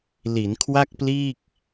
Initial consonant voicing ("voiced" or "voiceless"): voiced